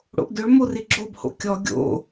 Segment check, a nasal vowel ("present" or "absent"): absent